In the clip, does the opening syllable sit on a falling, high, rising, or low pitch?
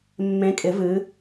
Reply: rising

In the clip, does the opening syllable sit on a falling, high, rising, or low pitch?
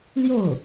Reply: falling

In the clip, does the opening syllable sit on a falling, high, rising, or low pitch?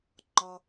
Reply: low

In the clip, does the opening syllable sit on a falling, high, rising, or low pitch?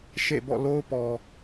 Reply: falling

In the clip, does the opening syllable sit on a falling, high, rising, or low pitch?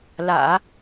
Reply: low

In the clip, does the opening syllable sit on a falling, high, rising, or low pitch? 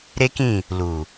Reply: high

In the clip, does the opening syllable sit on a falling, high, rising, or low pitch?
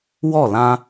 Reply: falling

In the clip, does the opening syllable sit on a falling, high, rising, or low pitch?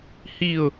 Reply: falling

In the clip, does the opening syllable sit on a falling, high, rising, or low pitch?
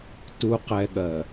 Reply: low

